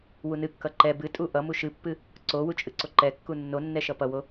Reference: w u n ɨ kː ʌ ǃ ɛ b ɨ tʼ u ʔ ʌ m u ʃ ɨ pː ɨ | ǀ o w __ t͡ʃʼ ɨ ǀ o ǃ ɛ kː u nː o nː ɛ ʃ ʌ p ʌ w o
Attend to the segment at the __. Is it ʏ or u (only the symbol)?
u